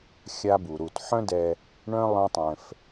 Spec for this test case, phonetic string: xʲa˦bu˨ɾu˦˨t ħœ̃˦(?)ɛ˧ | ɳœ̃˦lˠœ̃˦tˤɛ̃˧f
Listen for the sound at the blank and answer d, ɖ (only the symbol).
d